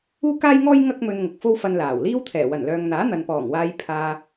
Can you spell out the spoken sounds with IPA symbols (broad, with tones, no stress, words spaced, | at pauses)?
uː˥kaː˥jŋɔː˥j ŋɐ˥k̚mɵ˧nŋʊ˨k̚ fo˥wfɐ˧n laː˨˩w liː˥wt̪ʰɛː˨˩ wɐ˨˩nlœː˨ŋ n̪aː˨˥n̪ɐ˨npɔː˨˩ŋwaː˧j pʰaː˧